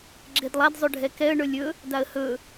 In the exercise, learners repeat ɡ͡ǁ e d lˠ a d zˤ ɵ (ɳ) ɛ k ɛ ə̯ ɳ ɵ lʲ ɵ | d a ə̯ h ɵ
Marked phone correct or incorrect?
incorrect